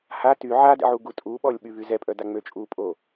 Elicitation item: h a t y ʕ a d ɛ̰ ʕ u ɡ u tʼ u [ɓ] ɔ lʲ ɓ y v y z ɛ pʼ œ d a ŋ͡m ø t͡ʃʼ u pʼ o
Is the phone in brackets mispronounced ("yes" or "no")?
no